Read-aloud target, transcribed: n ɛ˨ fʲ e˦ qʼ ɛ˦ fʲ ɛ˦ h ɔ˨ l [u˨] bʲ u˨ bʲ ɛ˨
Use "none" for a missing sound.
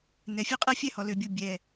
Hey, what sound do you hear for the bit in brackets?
ø˨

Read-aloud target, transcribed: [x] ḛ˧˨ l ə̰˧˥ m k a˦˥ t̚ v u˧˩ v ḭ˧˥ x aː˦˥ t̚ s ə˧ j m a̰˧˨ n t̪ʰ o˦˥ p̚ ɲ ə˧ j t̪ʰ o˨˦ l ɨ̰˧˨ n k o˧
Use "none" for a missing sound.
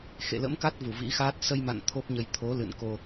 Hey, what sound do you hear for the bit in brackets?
x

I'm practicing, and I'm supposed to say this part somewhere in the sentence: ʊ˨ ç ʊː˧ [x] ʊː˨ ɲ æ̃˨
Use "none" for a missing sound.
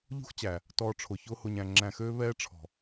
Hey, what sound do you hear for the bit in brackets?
h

